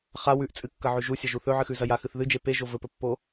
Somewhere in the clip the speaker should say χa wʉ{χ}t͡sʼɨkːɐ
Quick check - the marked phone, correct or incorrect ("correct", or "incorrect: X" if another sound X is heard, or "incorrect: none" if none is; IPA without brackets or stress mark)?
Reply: incorrect: ʔ